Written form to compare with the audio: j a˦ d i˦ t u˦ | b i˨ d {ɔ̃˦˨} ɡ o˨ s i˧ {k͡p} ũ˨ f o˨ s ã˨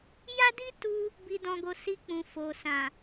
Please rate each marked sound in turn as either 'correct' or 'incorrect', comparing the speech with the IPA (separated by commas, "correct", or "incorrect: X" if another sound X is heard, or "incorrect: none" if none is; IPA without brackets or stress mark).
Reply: incorrect: ɔ̃˨, correct